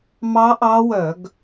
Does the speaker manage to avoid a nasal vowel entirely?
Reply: yes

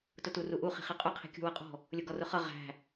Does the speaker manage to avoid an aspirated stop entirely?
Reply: no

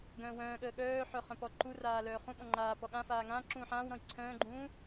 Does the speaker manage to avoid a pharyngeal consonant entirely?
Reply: no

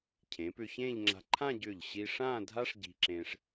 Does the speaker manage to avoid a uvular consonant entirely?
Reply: yes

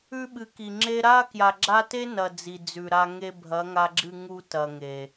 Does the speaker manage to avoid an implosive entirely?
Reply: no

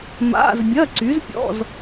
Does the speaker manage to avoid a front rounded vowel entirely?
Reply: no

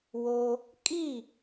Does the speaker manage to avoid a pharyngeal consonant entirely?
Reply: yes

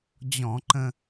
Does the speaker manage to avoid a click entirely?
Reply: no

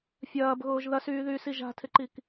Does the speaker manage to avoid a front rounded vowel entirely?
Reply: no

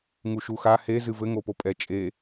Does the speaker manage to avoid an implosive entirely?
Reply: yes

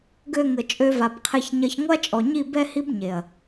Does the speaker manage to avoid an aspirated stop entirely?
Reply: no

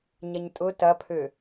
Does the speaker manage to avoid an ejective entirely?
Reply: no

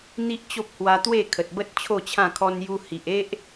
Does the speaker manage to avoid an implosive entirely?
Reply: yes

